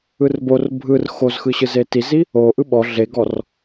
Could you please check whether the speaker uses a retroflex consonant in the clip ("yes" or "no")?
no